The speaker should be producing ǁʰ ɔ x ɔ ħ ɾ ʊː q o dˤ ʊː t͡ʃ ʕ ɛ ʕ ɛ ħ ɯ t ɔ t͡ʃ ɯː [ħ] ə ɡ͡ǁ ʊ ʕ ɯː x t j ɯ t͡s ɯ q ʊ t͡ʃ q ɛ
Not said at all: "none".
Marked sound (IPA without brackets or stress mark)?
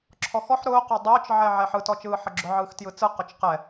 ħ